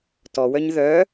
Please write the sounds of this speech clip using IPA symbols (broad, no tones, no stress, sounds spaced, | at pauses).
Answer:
t ɔ w œ ɲ ð œ